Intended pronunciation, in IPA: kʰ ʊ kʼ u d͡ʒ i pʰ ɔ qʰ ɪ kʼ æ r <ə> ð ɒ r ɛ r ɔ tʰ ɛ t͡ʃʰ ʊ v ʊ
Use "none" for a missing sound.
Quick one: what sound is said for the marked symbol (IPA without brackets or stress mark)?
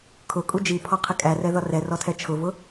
ɛ